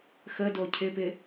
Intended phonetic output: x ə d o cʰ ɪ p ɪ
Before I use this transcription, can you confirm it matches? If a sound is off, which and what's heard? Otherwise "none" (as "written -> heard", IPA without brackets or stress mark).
none